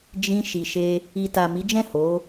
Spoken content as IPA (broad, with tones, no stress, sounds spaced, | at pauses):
d͡ʒ ĩ˧ ʃ i˨ ʃ e˧ | i˨ t a˨ m i˨˦ d͡ʒ ɛ̃˦˨ h o˨˦